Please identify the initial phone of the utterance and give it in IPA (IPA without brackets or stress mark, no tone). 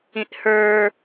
ĩ